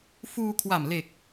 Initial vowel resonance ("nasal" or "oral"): oral